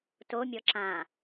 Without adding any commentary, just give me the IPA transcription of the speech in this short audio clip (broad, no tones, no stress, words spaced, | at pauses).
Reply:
tomʲɔ ǁã